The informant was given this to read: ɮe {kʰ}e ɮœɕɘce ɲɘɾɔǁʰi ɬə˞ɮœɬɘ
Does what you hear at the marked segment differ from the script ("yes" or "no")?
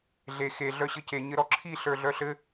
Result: yes